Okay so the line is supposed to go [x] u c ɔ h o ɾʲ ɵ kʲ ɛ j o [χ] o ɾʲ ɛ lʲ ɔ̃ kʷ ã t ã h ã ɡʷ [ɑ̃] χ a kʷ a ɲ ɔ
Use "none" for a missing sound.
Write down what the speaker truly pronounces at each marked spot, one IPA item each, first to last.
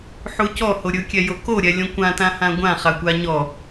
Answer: ħ, k, ã

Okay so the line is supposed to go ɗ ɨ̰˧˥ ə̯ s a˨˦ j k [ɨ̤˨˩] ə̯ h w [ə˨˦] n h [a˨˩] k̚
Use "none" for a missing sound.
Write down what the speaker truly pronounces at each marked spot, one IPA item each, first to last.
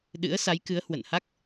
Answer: ɨ˨˦, ə̰˧˨, a˦˥

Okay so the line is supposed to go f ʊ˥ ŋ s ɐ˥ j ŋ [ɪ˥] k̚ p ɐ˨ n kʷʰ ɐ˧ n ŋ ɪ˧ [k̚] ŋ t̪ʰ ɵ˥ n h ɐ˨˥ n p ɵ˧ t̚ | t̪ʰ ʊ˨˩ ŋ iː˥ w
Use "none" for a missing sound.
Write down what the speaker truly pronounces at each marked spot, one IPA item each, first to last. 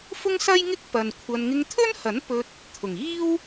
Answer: ɪ˥, none

